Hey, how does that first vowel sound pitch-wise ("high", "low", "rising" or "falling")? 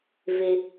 low